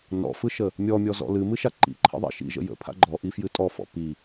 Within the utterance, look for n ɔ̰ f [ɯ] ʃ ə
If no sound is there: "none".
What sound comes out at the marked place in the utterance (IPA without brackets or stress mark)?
ɯ